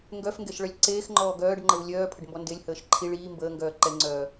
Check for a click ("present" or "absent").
present